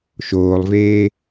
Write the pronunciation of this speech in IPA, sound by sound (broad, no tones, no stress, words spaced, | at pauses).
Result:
ʃoːlˠveː